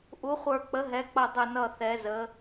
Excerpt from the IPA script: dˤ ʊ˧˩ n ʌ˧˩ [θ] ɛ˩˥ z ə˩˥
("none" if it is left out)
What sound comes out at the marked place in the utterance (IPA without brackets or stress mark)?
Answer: θ